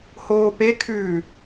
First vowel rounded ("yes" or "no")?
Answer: yes